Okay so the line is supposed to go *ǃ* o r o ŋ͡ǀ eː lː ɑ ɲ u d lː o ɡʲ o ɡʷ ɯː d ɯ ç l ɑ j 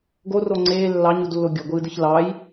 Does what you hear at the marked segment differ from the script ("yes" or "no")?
yes